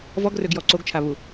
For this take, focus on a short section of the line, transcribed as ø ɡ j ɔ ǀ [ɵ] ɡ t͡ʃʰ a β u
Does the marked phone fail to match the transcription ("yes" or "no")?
yes